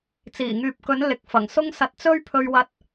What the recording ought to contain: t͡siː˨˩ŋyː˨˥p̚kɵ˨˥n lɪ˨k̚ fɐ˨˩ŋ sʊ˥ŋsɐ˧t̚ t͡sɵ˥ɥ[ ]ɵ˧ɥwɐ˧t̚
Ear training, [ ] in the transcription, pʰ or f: pʰ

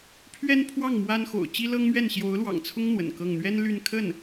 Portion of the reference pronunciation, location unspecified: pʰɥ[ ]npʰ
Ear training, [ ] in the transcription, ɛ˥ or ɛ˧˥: ɛ˥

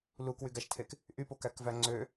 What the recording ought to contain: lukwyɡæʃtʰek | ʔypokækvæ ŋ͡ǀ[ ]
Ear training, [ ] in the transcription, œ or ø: ø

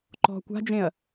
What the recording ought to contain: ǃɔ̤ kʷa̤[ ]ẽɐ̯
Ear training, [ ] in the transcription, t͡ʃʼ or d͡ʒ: d͡ʒ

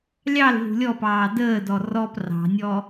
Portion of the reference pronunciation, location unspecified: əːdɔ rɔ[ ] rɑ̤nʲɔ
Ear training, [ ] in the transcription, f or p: p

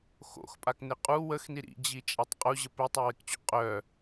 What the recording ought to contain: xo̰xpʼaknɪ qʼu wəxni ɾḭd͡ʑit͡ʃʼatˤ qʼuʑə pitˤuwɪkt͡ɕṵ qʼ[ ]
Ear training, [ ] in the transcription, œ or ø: œ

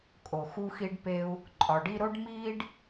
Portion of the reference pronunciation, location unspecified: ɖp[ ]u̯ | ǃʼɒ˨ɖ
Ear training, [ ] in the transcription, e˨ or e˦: e˦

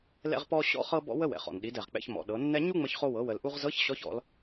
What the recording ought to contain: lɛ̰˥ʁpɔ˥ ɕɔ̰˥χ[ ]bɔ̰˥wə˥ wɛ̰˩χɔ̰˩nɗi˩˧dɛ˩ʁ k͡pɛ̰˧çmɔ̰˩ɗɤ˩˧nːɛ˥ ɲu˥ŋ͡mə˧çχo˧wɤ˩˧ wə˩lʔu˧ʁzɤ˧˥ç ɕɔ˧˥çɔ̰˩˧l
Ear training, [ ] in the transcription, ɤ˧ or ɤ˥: ɤ˥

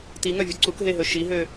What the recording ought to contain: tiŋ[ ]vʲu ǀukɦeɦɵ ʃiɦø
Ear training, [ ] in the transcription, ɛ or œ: œ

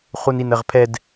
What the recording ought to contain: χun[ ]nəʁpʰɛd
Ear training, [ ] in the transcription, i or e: i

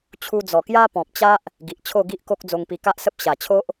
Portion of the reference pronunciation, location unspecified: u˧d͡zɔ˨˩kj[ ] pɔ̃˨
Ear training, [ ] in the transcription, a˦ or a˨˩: a˦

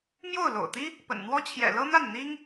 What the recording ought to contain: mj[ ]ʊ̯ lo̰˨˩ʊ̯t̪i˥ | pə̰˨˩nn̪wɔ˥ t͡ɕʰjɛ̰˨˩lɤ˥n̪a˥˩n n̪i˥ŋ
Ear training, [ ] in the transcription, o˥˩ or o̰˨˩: o˥˩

